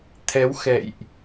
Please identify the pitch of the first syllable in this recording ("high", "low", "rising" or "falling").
rising